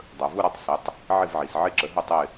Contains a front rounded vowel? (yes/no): no